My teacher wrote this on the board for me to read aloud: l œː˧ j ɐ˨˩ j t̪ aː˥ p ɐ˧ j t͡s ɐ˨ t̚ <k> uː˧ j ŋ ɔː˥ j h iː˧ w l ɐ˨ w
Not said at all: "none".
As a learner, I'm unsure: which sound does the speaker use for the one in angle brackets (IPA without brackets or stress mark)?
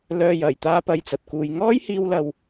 k